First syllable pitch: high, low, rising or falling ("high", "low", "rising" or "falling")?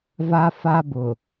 high